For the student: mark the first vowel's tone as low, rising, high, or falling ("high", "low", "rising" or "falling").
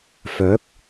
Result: rising